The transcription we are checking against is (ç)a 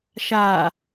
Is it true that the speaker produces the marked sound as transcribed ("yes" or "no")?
no